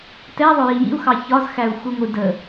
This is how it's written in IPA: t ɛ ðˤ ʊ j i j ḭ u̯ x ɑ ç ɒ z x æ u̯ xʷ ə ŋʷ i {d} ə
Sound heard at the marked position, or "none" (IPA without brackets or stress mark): d